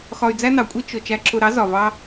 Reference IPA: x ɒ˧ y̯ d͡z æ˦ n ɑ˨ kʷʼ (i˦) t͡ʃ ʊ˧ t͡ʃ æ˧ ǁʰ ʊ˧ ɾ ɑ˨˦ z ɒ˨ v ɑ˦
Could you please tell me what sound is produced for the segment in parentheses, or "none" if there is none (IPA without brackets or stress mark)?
i˦